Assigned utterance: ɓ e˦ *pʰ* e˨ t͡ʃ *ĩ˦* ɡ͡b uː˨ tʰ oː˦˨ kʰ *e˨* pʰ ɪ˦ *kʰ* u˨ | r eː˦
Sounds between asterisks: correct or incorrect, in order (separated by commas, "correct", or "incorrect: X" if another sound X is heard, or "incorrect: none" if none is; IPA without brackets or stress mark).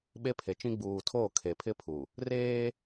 correct, correct, correct, incorrect: pʰ